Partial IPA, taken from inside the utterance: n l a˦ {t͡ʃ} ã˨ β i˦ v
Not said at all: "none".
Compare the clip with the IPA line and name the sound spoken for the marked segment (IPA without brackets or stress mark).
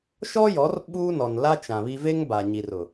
t͡ʃ